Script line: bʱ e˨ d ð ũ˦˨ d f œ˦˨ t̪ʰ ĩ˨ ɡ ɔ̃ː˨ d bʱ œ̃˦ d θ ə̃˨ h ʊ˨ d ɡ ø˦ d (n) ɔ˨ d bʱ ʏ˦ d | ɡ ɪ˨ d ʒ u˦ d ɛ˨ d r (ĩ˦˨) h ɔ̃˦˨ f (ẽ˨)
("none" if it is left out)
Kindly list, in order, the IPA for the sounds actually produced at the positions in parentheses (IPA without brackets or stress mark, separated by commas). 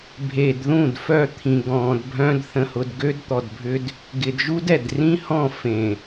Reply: t̪, ĩ˦, ẽ˨